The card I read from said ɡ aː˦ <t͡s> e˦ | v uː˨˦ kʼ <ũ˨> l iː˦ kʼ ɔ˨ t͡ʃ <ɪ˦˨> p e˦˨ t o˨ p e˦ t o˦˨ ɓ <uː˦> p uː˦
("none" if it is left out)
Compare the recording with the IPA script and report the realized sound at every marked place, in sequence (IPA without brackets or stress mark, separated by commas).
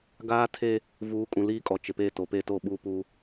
tʰ, ũ˨, ɪ˨, uː˦